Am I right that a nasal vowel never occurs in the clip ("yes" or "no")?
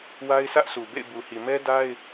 yes